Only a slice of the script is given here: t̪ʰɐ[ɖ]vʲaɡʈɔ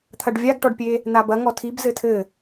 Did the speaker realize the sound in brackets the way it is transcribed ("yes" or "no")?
yes